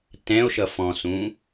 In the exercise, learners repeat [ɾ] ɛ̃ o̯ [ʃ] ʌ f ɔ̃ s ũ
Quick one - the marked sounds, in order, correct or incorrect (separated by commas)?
incorrect, correct